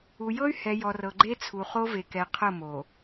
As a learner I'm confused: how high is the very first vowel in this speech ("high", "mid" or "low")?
high